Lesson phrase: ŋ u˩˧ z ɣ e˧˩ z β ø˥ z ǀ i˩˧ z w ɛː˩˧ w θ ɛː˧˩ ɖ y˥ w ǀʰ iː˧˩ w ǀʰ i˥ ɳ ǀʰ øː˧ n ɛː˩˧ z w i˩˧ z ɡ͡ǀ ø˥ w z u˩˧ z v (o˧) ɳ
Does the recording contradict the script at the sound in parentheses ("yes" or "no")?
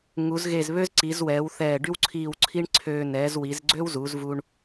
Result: yes